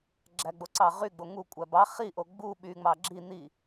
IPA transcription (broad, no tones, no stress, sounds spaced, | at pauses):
ɡ͡ǁ æ ɡ͡b o ǀ ɑ ʁ y ɡ͡b o ŋ u kʷʼ æ b ɑ χ i ʔ o ɡ͡b u ɓ y ŋ͡m ɑ ɡ͡ǁ i n̪ i